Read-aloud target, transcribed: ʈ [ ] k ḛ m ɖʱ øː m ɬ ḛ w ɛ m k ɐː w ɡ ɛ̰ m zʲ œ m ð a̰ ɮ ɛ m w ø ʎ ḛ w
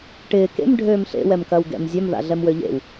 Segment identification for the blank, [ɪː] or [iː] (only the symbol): ɪː